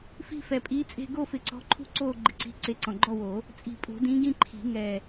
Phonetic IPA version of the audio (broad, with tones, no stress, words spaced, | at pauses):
fi̤˦˨fɛ˨˩pʼiː˨˦t͡sʼe̤˦˨ ɡo˦˨fɪ˨˩˦ǀɔ̤˨˦ǃʰṳ˦˨ ǀoː˦˨ ɡ͡ǃɪ˨˩ǀi̤˨˦ ǀe˨˦ǀɔ̃˨˩ɡ͡ǃɔ˦˨woː˨˩˦ | t͡sʼi̤˨˩pʼo̤˨˩˦dĩː˨˦ɡĩ˦˨ ǃʰi̤˨˩˦ŋɛː˨˩